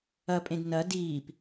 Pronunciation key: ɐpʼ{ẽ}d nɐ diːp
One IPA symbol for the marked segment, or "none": ẽ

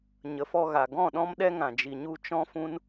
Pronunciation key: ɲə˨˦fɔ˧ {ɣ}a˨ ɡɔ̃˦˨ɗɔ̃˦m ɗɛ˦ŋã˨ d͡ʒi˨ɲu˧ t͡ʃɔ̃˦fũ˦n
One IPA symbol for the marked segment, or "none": ɣ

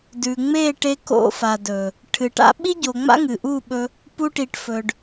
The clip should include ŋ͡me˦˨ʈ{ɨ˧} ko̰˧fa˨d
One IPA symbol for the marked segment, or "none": e˧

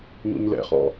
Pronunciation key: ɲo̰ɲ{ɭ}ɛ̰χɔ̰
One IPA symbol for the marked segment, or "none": l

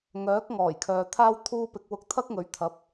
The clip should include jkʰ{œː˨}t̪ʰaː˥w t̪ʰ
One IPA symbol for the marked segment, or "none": œː˨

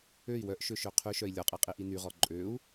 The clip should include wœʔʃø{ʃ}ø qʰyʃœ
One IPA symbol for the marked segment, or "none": ʃ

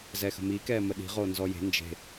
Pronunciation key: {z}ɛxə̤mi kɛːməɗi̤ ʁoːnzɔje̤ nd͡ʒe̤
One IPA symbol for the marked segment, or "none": z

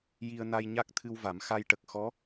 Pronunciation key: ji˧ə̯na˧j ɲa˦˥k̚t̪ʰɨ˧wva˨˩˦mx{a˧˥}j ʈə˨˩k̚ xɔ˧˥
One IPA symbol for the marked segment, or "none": a˧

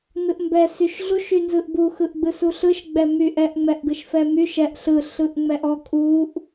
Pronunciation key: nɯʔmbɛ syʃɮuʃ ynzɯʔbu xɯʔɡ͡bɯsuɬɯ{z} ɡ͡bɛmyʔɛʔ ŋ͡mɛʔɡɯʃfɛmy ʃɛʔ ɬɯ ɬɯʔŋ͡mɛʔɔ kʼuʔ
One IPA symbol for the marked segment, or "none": ʃ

